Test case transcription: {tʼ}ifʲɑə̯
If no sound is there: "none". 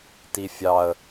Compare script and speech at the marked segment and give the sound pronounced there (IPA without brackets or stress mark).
t